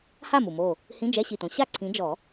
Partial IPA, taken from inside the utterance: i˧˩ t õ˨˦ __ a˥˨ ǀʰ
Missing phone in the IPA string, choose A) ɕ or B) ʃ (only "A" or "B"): A